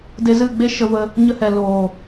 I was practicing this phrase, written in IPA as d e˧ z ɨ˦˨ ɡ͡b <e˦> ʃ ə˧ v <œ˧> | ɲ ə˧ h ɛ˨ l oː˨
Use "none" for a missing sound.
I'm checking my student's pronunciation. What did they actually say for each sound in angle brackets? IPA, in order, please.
e˦, ə˧

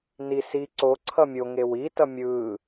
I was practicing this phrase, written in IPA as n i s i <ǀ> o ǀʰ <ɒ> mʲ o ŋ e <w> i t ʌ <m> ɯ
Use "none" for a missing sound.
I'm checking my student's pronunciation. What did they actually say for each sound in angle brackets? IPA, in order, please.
ǀ, ʌ, w, mʲ

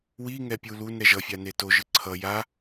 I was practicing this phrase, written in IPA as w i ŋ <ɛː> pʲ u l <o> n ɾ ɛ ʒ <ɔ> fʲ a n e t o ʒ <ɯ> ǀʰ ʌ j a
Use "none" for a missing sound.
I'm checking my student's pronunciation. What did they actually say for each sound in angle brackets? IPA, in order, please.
ɛ, u, ʌ, ɯ

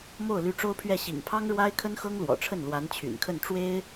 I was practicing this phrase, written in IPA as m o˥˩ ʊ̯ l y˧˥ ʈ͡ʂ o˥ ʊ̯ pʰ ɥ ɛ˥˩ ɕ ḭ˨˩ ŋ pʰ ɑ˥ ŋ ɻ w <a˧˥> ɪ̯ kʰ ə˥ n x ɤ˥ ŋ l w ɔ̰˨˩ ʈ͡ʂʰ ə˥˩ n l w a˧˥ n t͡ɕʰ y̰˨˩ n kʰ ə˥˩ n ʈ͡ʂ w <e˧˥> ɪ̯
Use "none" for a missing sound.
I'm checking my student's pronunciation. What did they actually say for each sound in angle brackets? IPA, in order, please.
a˥, e˥

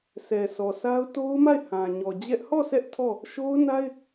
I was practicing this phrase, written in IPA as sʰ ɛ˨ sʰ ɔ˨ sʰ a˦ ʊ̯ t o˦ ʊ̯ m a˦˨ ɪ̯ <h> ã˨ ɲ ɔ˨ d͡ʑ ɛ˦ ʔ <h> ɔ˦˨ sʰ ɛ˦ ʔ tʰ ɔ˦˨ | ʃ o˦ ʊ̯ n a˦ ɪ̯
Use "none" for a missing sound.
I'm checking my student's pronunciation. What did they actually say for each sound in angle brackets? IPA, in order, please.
h, h

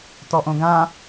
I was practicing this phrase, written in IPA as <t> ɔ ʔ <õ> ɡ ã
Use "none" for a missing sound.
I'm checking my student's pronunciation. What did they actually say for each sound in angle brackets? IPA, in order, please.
t, õ

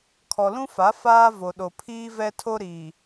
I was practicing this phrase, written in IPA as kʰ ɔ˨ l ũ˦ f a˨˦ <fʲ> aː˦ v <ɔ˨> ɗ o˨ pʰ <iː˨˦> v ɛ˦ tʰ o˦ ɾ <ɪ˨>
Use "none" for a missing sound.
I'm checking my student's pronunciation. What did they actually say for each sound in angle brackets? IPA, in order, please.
f, o˨, iː˦, i˨

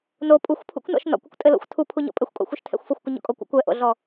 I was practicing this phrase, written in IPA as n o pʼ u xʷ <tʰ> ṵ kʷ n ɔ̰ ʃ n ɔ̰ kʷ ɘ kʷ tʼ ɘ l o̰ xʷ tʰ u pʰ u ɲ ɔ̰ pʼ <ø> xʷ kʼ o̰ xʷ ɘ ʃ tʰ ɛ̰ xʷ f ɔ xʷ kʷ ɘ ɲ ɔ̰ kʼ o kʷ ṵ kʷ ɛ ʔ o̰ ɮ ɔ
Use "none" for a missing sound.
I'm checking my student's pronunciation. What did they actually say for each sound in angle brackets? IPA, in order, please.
pʰ, ɘ

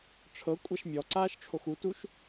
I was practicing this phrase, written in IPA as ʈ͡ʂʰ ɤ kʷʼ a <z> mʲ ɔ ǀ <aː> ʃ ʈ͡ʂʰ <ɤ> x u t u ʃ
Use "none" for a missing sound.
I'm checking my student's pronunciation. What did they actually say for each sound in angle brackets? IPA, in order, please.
ʃ, aː, o

